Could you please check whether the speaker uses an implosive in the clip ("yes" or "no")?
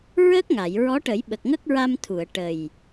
yes